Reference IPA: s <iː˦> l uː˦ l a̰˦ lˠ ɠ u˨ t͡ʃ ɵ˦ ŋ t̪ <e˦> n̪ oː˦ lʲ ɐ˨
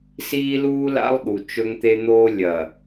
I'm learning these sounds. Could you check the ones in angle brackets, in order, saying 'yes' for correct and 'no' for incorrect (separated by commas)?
yes, yes